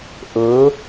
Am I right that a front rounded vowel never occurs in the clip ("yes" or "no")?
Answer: yes